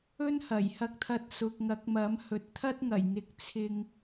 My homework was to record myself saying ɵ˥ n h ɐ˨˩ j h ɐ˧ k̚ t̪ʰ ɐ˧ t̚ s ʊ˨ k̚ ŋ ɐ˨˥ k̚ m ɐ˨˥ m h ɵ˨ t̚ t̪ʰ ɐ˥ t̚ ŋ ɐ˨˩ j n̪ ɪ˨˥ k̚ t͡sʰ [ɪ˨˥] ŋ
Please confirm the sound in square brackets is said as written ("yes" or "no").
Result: no